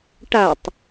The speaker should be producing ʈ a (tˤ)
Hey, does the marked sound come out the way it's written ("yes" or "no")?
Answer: yes